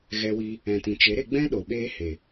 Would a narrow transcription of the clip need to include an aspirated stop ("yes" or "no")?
no